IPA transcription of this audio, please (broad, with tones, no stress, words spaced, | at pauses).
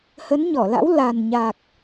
hə˨˦nɲɔ˧˩la̰˧˥w la˨˩nɲa˨˩k̚